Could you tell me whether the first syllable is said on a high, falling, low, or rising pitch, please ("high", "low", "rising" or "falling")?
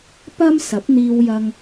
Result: high